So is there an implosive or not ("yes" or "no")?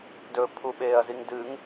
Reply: yes